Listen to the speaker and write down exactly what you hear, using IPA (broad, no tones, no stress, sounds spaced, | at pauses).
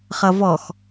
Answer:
χ ʌ v ɔ x